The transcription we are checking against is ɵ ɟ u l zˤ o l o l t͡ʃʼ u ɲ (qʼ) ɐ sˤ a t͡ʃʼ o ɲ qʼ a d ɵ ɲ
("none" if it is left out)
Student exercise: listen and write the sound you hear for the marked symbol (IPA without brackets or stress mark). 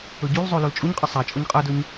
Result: qʼ